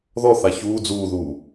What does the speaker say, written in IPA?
ðɔ θaçuː d͡zuːðuː

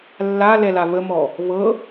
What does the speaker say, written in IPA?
lːalɛla βəmɔ | βɤ

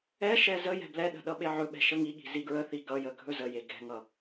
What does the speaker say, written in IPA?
ɛʃɛ zə jɛ̤blɛɗə̤ ɗʌɓeʕɵɓɛ̤ ʃəŋiɠi̤ ziɡɹəθi ɡʌjə ɡʱɵzəje ɡɛ̤ŋʌ

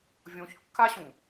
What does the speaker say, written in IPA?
vʲõçkːaɕũ

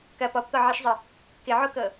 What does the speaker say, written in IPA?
kɐ pɔpt̪ɔʕiʃzˤɪ | kɪʕokɤ

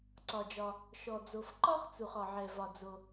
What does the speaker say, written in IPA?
ǀɒ˩d͡ʒɒ˩ | ʃɔ˩d͡zo˩fǃɒ˥χt͡su˩χ ɒ˩ʕɛ˩vɒ˩ d͡zo˩

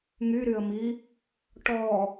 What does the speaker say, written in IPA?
ŋyɾyə̯mi | ʈɔ

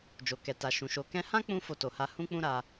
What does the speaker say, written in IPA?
d͡ʒo˨kɛ˨ta˨ʃũ˨ ʃo˧ kɛ̃˧hã˦ k͡pũ˦fo˧to˨ha˧ hũ˦k͡pũ˦ ɾa˧

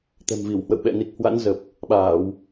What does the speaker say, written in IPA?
t̪ɛ̤˨˩mvi˧˩w hwə̰˧˨wɓɛ̰˧˨ ni˨˩k̚hwa̰˧˥nzə˨˩p̚ | ɓaː˧˩˨w

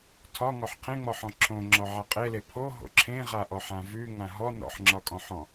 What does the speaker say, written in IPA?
tʰɒ ŋɔħqʰẽŋ͡mɔħɔ̃ ǁʰõŋ͡ǁɔ ʕaqʼele pʰo ɦo̰ǁʰẽ ʁaʔɔħãvʉ ŋãɦɔ nɔ̰ħŋ͡ǁɒkʼɔ̃ħɔ̃

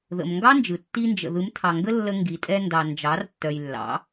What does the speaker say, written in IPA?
ðə̰˨m ŋɡɑ˦nd͡ʒɯ˨ tːi˧nd͡ʒə̰˨ ðɯ˨˦mtʰɑ˨ŋɡə˦lːə˧ ŋɡi˨tʼɛ˧ndɑ˨ nd͡ʒɑ˨˦r tːœ˨jlːɑ̰˨˦

